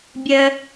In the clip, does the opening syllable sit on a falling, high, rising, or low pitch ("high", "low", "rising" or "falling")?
high